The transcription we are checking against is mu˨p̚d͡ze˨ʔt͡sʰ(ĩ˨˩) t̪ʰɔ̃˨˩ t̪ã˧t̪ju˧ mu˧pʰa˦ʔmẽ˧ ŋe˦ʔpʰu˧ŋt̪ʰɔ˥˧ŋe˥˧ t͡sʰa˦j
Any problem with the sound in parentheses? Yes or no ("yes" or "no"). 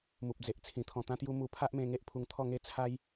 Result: no